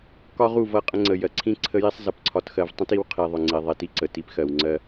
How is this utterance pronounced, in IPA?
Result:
k ɒ˦ ʁ u˦˨ v ʌ˦˨ qʼ ə̃˦ ŋ͡ǀ ə˨ j ɜ˨ ǀʰ ĩ˦ ǀʰ ə˦ j i˦ sˤ z ʌ˨ p ǀʰ ɒ˨ t x ɜ˦ v tˤ ə̃˦ t i˦ w qʰ i˨ ðˤ ʊ˨ ŋ͡ǀ i˨ ðˤ i˨ t i˦ ǀ ə˨ t i˦ p x ɜ˨ w ŋ͡ǀ ɜ˦

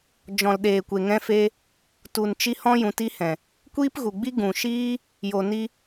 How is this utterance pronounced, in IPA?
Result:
d͡ʒ ɔ̃˨ l ɗ eː˨ kʷ e˨ ŋ ɛ̃˧ f e˧ | t u˨ n t͡ʃ i˧ h ɔ̃˦ j ũ˨˦ t i˦ h ɛ̃˨ | kʷ iː˦ p ɣ u˨ ɡ͡b i˦ ɡ ũ˨ ʃ iː˦ | j o˨ n i˧

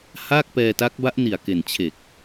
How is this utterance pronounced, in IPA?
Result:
h aː˥˩ k̚ p ɛː˧ t a˦˥ k̚ b a˦˥ ʔ n i˨˩ a̯ k e˨˩ n t͡ɕʰ e˨˩ k̚

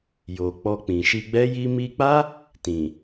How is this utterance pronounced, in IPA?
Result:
j o˨ k͡p ɔ˧ k͡p ĩ˨ ʃ i˧ ɡ͡b ɛ˦ j i˧ m i˧ k͡p a˦ | t ĩ˨

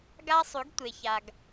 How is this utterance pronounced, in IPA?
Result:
ɡ a˦ sˤ ʉ˨˦ ɡ tʷ e˨ ç a˨ ɡ

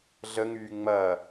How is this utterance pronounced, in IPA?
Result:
ɮ ə ŋ yː ŋ͡m ɐː

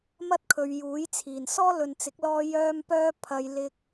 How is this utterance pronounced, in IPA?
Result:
m ɐ˥ t̚ kʰ ɵ˨˧ ɥ j uː˨˥ j t͡sʰ iː˨˩ n s ɔː˥ l ɵ˨ n t͡s ɪ˨˥ k̚ l ɔː˥ j œː˥ m p œː˥ pʰ ɐ˨˧ j l ɪ˧ k̚

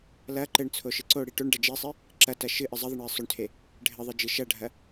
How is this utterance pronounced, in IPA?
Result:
l ɐ ǃ ɘ ɳ t͡sʰ o ʃ ɨ ǀ o ɽ i ʈ o ɳ ɖ ɐ d͡ʒ e sˤ i | ǁ ɐ t ɐ ʃ ɨ ʔ ɘ zˤ ɐ ðˤ e ɳ j e sˤ o ɳ tʰ e | ɖʱ ɘ ðˤ ɘ d͡ʒ ɨ ʃ ɐ ɖʱ ɐ

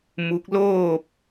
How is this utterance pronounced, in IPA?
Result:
m u˧˥ k̚ l oː˥˨ p̚

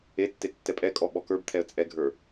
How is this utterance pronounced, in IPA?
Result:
e tː e tː ɛ pʼ ɛ kʼ ɔ ɓ ɔ k ə˞ b t̪ʰ ɛ ə̯ t͡sʼ ɛ ɡʱ ə˞

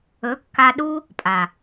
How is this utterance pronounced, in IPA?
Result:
ɵ˨˦ kː a˧ ɗ u˦ | pʼ a˨

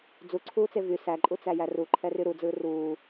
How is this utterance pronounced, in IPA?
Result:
d͡z u ǀʰ uː t͡s e v y s æ ǃʼ u t͡s æ j æ r u ǃʰ ɛ r y ɾ u d͡z ɯː r uː

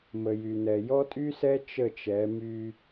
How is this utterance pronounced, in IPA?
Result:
m ə˨ j y˨ n ɛ˨ j ɔ˦ tʼ y˦ s ɛ˦ t͡ʃ ə˦˨ t͡ʃ ɛ˨˦ m y˦

